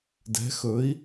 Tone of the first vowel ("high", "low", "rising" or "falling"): rising